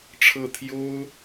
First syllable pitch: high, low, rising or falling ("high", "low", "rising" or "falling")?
falling